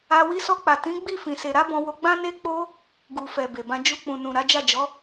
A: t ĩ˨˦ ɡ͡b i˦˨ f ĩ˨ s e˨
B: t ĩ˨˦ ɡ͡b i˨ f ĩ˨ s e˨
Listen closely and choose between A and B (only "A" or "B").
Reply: A